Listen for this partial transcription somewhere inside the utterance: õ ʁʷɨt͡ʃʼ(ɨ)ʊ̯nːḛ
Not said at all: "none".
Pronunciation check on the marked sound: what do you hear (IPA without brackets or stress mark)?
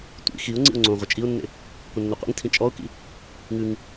i